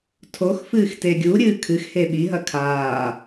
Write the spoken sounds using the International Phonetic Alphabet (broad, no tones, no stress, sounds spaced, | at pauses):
tʰ o x f ɨː x t e ɡʲ u ɾʲ ɨː kʰ ɨ x h e ɓ i ɦ ɐ kʰ aː